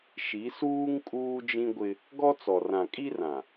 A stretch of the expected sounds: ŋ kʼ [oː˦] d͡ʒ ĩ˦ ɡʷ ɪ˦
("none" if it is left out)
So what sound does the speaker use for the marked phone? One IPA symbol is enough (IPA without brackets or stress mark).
uː˦